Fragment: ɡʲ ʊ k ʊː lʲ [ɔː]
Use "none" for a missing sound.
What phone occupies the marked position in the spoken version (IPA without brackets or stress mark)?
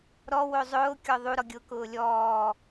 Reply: ɔː